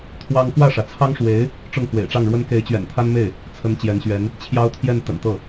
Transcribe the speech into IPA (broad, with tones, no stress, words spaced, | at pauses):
t̪ʰwɑ˥ŋ kwä˥˩ʂä˩t͡sʰɑ˥ŋʂwe˧˥ɪ̯ | ʈ͡ʂʊ˥˩ŋkwḛ˨˩ɪ̯ ʈ͡ʂɑ˥˩ŋɻwə˥n ke˧˥ɪ̯t͡ɕɥɛ̰˨˩n t̪ʰa˥nme˥˩ɪ̯ | t͡sʰə˧˥n t͡ɕjɛ˧˥nɕɥɛ˧˥n | t͡ɕʰjɑ˥ʊ̯t̪ʰjɛ˥˩n t̪ə̰˨˩nt̪ɤ˥˩